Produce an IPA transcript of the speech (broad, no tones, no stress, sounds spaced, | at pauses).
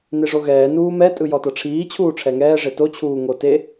n e ʐ o ɣ ɛː n uː m ɛ tʼ ɯ j ɔ t ɤ ʈ͡ʂʰ iː t͡ɕʰ uː ʈ͡ʂʰ ɛ ŋ ɛː ʐ e t o t͡ɕʰ uː ŋ o t e